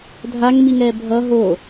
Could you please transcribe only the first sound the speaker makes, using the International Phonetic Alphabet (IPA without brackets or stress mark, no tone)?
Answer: dʱ